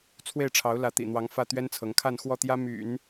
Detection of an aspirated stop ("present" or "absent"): present